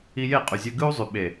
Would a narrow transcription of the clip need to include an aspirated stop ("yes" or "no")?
no